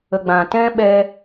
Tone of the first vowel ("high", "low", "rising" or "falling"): low